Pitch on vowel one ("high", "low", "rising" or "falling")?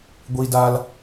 high